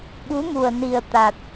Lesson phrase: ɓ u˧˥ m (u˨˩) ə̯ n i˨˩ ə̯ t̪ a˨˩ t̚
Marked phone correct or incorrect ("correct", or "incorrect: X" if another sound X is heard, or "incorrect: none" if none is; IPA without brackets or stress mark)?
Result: correct